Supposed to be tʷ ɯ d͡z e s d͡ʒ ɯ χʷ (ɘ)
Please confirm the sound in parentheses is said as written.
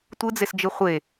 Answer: no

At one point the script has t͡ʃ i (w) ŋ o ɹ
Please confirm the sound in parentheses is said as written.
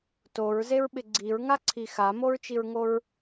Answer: no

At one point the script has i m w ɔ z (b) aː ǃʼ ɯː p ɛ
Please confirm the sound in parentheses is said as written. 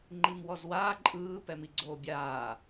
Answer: no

